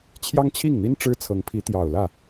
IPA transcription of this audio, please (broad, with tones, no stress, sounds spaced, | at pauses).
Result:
t͡ɕʰ j ɑ˥ ŋ t͡ɕʰ i˥˩ ŋ n̪ i˥ n ʈ͡ʂ ɻ̩˥ t͡sʰ ɤ˧˥ ŋ pʰ i˧˥ t̪ j ɑ˨˩ ʊ̯ l ä˥˩